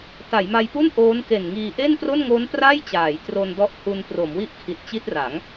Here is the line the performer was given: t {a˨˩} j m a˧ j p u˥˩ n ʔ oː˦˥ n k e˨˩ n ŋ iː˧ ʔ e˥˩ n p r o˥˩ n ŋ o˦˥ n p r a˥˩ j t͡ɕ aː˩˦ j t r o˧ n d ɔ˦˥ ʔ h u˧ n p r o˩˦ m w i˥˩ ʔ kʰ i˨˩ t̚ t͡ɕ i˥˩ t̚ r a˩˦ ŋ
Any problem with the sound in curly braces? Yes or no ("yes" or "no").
yes